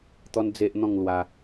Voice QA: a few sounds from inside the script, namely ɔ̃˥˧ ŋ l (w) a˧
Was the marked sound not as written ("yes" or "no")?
no